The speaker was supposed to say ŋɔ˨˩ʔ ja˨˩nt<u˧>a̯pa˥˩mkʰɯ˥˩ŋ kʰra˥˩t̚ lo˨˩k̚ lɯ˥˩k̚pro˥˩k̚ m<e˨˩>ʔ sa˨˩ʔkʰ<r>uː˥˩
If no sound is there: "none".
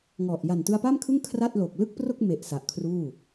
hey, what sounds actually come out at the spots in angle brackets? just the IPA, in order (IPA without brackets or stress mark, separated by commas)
ɯ˧, e˨˩, r